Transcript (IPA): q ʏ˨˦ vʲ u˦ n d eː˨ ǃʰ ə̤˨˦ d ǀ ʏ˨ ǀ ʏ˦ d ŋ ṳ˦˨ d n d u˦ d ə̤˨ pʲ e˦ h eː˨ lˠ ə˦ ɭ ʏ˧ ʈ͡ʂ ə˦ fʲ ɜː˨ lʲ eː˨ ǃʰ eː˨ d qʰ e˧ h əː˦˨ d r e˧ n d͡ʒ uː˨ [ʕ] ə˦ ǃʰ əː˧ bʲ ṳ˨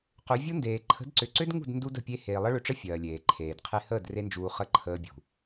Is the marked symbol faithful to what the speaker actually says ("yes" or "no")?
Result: no